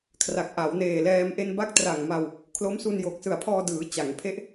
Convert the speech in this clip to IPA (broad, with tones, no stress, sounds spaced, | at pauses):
kʰ r a˨˩ k̚ ʔ a˩˦ w n eː˨˩ l ɛː˧ m ʔ e˧ n b a˦˥ k̚ t r a˨˩ ŋ m a˧ w | kʰ l o˦˥ m s u˧ n j o˨˩ k̚ s ɯ˨˩ a̯ pʰ ɔː˧ d ɯː˩˦ t͡ɕ a˩˦ ŋ pʰ e˦˥ ʔ